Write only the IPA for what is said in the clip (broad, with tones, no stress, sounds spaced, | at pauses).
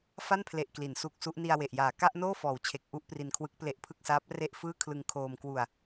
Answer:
f a˥˩ n pʰ l e˨˩ ʔ k l i˩˦ n s u˦˥ k̚ s u˦˥ ʔ n i˧ a̯ w e˨˩ ʔ j aː˨˩ k a˥˩ ʔ n oː˥˩ f ɔː˨˩ w t͡ɕʰ e˨˩ k̚ ʔ u˥˩ ʔ p r i˧ n kʰ w ɯ˦˥ k̚ p l e˦˥ ʔ pʰ ɯ˥˩ k̚ s aː˦˥ p̚ r e˥˩ ʔ f ɯː˥˩ kʰ l ɯ˧ ŋ kʰ oː˧ m k w u˧ a̯